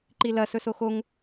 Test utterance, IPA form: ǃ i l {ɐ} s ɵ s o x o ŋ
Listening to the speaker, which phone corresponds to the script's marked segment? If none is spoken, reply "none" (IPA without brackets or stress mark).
ɐ